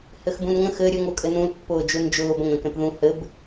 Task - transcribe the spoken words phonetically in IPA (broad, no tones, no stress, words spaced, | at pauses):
hɘxbũnŋə̃x ɘ ɾʲɘŋ okʼɘnũl pːʊːd͡ʒund͡ʒʊːb ə̃ŋ ə̃ːkɛ̃pðũ hɘb